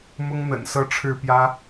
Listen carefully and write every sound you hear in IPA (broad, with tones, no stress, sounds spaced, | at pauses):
m ʊ˦ ŋ n̪ ə̰˨˩ n s ɤ˦ ʈ͡ʂʰ ɻ̩˥˨ p j ä˦